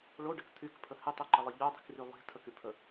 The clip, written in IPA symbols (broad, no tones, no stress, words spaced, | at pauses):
ɭoɖək t̪ʰykpʰə hɪtˤeǃɪlˠɪ ʎodˤi̤kry lˠi̤ tʰəkypʰə